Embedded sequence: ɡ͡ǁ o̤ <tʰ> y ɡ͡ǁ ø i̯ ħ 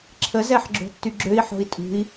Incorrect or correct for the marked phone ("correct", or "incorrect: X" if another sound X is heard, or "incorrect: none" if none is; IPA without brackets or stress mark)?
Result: incorrect: tː